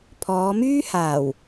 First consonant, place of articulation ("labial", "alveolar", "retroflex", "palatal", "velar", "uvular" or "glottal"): labial